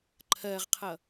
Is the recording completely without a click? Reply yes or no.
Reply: no